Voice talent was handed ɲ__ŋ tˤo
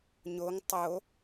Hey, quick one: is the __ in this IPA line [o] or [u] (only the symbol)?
o